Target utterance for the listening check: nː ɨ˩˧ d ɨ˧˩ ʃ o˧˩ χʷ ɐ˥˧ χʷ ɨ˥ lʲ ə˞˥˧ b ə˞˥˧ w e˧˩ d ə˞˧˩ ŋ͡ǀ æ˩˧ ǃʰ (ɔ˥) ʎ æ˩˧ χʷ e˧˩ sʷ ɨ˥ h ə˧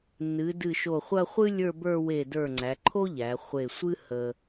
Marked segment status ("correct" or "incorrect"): incorrect